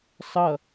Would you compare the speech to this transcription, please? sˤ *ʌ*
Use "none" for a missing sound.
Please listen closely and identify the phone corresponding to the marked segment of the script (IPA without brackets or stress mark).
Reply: ʌ